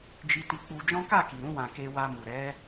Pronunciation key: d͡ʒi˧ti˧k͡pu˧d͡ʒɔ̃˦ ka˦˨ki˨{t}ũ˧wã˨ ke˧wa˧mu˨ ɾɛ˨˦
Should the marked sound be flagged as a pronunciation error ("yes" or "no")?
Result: yes